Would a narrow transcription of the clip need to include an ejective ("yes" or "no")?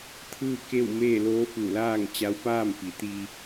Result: no